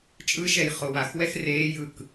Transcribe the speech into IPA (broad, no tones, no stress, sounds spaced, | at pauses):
t͡ʃʼ ɯ ʃ ɛ j χ o w a x w ɛ x r eː j ɯ k